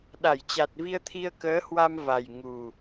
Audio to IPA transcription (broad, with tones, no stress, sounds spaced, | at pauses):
ɗ a˧˩ j t͡ɕ a˨˩ t̚ v i˧ ə̯ t̪ʰ i˧ ə̯ k əː˨˦ h w a˧ m v a˨˩ j ŋ u˨˩